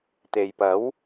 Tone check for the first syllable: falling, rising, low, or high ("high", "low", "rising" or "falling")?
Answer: low